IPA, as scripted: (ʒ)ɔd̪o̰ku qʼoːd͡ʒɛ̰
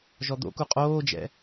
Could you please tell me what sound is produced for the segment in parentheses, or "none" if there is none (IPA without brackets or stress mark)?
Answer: ʒ